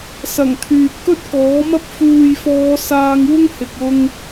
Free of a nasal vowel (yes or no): yes